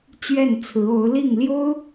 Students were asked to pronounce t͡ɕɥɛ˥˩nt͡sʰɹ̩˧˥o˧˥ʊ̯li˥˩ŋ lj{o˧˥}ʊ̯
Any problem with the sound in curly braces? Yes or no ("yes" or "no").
yes